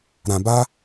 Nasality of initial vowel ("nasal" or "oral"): nasal